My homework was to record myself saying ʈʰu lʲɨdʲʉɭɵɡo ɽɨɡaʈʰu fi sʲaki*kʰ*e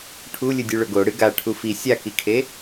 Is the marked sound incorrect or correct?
correct